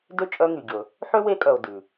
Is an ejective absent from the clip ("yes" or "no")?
no